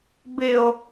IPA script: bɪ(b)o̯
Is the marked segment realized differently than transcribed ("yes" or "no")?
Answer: yes